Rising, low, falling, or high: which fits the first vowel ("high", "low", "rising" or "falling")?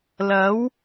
rising